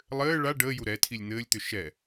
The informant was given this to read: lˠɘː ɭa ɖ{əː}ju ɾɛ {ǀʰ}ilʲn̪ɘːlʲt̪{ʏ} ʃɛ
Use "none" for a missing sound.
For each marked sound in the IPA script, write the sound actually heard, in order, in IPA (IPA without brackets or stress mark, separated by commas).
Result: əː, tʰ, ʏ